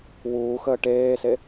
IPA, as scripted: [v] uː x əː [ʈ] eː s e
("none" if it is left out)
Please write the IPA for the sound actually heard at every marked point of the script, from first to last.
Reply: w, ʈ

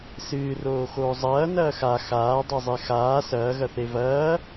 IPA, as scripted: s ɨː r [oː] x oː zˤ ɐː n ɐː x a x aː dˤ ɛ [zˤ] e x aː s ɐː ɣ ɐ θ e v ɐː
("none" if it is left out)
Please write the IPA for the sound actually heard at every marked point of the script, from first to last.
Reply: oː, zˤ

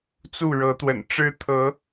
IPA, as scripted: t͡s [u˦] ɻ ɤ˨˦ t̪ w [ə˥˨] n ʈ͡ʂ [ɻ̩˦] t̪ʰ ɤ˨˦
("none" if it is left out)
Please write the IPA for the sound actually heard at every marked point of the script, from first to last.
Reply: u˥˨, ə̰˨˩, ɻ̩˦

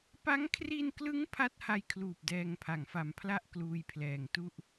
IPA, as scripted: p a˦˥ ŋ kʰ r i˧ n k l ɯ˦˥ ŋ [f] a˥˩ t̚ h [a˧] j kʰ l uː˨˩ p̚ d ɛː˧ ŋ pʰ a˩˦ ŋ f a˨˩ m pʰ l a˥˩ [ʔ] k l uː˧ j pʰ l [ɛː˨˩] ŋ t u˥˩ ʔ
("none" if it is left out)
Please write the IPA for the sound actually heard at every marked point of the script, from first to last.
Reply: pʰ, a˧, ʔ, ɛː˨˩

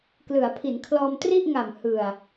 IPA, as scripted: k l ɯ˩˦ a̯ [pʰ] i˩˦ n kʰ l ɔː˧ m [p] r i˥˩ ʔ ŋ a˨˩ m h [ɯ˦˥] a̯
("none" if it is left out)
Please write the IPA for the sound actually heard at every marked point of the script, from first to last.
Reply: pʰ, t, ɯ˨˩

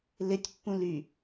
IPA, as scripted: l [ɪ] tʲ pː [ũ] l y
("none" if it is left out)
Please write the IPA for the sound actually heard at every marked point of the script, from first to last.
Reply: ɪ, ũ

